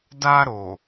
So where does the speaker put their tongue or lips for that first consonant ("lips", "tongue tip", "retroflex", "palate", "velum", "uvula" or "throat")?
tongue tip